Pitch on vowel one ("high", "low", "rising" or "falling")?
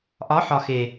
rising